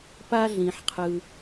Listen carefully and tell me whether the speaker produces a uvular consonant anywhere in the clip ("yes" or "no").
yes